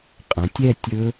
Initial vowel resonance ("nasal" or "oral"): nasal